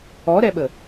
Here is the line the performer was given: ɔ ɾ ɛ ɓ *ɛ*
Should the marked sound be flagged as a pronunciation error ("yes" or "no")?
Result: yes